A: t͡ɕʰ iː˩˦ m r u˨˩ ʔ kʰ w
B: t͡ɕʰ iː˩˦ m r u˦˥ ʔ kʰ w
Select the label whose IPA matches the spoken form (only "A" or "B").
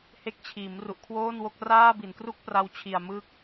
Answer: A